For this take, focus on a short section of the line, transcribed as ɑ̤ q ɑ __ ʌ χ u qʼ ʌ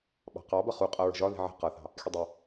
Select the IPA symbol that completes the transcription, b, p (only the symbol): b